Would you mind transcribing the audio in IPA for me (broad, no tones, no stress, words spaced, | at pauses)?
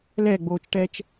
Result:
lɛɡ͡boːt͡ʃʈɛt͡ʃ